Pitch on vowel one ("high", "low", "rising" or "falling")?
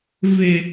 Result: high